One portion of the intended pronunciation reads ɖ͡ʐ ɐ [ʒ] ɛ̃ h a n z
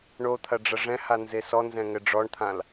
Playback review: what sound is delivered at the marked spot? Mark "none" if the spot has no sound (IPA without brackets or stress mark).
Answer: ʐ